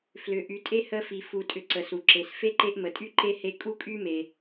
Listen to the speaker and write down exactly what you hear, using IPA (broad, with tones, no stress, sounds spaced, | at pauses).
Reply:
f l ʏ˨ ʔ y˨ tʼ e˥ h ə˦ f i˨ f u˨ tʼ ʏ˨ ǀ ə˩ s u˩ ǁ e˩ s f e˥ ǃ e˦ ʔ m ə˩ tʼ y˥ ǃ e˥ h e˦ kʼ u˥ kʼ y˥ m e˩